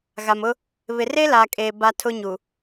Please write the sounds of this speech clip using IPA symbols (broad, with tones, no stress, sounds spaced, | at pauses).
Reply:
ɣ a˨ m ʊ˦ | β ɪ˨ r e˦ l aː˨ kʼ eː˨ b a˦ tʰ ʊ˦ ɲ u˨